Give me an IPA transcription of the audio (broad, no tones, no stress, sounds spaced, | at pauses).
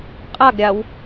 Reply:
qʼ a ɡ ɾʲ a w